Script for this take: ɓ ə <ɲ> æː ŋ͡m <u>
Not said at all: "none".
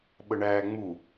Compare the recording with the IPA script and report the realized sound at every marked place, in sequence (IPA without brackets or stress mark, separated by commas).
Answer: ɳ, u